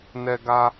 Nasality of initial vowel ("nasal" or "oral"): oral